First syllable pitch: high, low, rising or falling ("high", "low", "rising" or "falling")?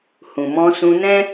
low